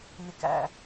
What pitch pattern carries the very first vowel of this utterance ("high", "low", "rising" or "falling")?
low